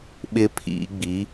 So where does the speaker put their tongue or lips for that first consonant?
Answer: lips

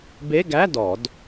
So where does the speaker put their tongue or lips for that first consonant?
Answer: lips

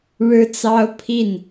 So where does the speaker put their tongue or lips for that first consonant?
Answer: retroflex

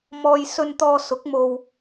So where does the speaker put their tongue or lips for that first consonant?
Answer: lips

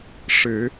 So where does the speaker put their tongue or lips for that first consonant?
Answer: retroflex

